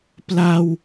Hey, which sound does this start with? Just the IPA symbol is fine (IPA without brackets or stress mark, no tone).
p